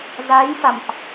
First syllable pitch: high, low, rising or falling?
rising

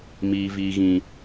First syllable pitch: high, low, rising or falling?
high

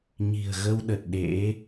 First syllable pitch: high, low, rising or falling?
low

